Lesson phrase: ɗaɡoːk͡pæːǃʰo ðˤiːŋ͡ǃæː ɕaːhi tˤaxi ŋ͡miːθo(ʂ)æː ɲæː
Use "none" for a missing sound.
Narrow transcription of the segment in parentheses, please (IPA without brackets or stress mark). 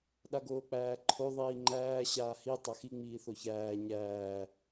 ç